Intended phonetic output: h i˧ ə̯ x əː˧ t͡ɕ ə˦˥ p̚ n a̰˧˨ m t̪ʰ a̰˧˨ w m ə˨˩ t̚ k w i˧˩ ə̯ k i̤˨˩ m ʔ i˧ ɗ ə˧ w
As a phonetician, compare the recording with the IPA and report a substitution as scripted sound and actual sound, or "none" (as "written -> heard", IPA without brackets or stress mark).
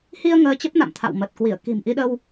x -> ŋ